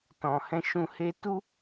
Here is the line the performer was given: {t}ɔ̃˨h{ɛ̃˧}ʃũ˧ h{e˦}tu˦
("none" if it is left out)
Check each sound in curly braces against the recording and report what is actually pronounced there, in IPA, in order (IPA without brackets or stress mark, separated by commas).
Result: t, ɛ̃˧, e˧